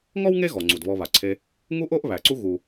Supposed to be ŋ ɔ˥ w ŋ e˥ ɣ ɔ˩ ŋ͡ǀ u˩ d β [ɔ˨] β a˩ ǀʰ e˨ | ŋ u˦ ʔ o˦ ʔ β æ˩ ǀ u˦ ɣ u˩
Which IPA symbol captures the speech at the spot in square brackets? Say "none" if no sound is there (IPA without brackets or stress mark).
ɔ˨